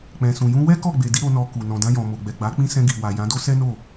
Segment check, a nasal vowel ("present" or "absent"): present